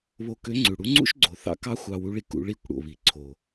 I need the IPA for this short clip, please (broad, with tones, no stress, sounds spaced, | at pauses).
β o˧ k ø˧˥ ŋ͡ǀ ʉ˩ ɽ u˧˥ ŋ͡ǀ ṵ˥ ʃ ɡ͡ǀ o˩˧ θ ɑ̰˧˥ k ɑ˥ xʷ ɑ˧ w u˧˥ ɭ i˧ k ṵ˩˧ ɭ i˧˥ kʷ ɽ o̰˩ β i˩˧ ǀʰ o˩